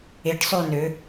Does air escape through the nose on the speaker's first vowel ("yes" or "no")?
no